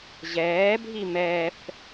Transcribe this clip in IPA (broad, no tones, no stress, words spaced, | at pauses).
ʑɛːbʱi mɛf